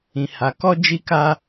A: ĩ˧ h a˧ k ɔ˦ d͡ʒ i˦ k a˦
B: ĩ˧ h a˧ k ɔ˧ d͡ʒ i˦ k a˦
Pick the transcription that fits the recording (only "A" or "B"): A